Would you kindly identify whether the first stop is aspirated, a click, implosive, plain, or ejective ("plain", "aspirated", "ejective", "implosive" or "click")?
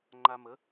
click